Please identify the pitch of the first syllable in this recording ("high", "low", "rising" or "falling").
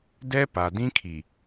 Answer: high